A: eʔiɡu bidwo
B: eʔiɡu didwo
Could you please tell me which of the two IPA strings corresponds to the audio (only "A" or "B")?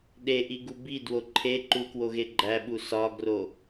A